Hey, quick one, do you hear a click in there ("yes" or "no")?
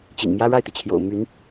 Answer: no